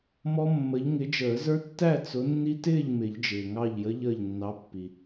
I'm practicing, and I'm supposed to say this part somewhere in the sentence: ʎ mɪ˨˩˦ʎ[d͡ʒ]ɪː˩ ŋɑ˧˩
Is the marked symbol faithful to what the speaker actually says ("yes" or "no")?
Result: yes